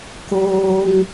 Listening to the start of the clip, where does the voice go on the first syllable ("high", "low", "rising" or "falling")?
low